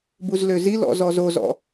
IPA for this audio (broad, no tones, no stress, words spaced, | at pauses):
buzløzilɔ̰ zɔzozɔ̰